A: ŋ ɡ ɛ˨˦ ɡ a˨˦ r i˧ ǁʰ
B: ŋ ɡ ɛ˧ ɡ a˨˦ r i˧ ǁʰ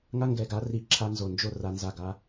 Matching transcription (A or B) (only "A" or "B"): B